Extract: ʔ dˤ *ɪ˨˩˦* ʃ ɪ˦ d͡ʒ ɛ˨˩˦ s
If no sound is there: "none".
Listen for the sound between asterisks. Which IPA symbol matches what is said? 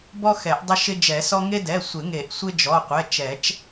ɪ˦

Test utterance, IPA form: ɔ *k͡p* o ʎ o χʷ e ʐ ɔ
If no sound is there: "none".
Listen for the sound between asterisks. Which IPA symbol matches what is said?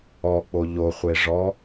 k͡p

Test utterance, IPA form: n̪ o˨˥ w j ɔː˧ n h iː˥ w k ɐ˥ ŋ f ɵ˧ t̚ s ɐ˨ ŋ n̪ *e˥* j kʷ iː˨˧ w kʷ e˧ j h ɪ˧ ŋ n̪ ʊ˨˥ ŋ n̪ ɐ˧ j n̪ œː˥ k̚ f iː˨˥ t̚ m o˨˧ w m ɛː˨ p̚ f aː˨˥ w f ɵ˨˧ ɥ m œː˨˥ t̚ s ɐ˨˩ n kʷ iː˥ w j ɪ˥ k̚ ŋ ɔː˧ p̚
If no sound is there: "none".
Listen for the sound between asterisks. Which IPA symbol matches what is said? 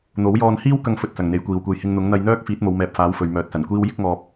e˨˥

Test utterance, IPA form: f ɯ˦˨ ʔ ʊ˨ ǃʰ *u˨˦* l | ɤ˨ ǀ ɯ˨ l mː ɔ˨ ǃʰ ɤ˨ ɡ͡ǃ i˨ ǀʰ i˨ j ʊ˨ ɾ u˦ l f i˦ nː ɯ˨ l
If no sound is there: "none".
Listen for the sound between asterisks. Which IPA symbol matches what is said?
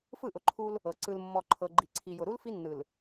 u˦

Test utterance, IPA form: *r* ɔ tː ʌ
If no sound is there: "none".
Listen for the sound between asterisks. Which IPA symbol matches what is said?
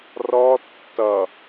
r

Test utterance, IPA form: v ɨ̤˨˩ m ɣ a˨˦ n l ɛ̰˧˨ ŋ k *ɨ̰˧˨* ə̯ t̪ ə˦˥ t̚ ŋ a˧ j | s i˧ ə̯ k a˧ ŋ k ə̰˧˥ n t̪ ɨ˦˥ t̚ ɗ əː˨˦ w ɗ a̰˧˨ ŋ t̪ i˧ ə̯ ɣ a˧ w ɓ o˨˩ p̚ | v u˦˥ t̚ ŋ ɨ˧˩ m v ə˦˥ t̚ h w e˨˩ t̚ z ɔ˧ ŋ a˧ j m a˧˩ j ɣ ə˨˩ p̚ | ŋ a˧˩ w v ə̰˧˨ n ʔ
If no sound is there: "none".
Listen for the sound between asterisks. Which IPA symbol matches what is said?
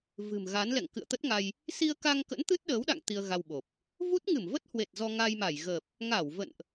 ɨ̰˧˨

